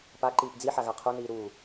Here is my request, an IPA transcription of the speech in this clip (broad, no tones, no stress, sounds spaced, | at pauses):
p a ǃ iː p d͡z i ħ a ɣ a qʰ o n iː ɾ uː